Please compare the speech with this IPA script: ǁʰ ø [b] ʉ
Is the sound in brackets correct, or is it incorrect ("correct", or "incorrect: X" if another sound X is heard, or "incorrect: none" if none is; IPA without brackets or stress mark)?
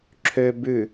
correct